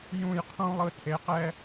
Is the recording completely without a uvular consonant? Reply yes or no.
no